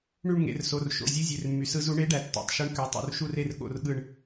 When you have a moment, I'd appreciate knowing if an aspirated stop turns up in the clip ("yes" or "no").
no